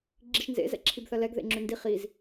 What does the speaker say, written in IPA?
ɡ͡ǁ i ʃ n z ḛ z ɛ̰ ǁʰ i b θ ɜ l ɛ ɡ ð ḛ ŋ͡ǁ ʏ n d i χ i z

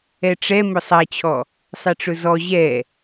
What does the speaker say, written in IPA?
ɛ ʈ͡ʂ ɛ m ʊ sˤ a t͡ɕʰ ɔ | sˤ e ʈ͡ʂ ɵ z ɔ ʑ ɛ

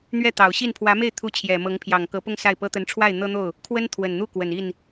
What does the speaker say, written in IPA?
n̪ ɥ ɛ˥˩ t̪ ɑ˨˩ ʊ̯ ɕ i˥˩ n pʰ w ä˧˥ m e˥˩ ɪ̯ t̪ʰ u˧˥ t͡ɕʰ j ɛ˨˩ m ɤ˧˥ ŋ pʰ j ɑ˨˩ ŋ k ɤ˧˥ p ʊ˥˧ ŋ s a˥˩ ɪ̯ p ɤ˥ t̪ ə˧˥ n ʈ͡ʂʰ w a˥˩ ɪ̯ n̪ ɤ˥ n̪ o˥˩ ʊ̯ | kʰ w ə˥ n t̪ʰ w ə˨˩ n n̪ u˥˩ k w ə˨˩ n i˥˩ n

